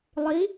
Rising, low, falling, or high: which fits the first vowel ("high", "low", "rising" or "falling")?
rising